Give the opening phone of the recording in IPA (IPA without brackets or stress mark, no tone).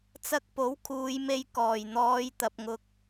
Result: t͡s